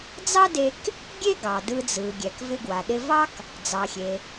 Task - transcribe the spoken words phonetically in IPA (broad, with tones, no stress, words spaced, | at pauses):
d͡zɑ˥de˧k | ɡʲe˥ ɡɑ˩dɯ˧ d͡zɯ˩ɡʲɛ˩k vɪ˧ɡwa˩ɗɪ˧vɑ˥k | d͡zɑ˩xʲe˩